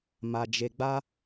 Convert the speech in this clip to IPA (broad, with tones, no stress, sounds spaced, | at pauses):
m a˧ d͡ʒ e˧ ɡ͡b a˦